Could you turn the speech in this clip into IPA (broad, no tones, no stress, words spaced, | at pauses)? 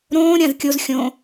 ɾõː ɾʲãzkʲoz xʲõ